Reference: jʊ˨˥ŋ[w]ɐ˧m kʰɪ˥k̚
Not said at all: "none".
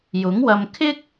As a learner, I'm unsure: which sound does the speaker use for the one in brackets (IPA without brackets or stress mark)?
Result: w